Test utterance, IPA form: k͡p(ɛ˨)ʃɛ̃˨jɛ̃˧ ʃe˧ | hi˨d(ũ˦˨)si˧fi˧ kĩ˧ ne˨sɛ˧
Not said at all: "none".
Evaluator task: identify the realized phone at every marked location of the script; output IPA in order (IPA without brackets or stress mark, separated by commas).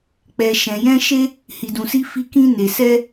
ɛ˨, ũ˨